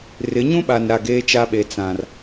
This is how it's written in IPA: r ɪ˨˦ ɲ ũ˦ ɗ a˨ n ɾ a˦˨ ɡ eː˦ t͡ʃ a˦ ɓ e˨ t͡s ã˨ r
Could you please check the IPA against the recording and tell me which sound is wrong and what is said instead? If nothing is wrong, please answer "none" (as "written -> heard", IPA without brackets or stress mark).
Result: ɗ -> ɓ